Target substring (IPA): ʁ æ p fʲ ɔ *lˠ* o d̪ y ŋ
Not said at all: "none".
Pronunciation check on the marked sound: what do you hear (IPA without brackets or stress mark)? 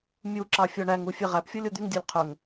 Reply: lʲ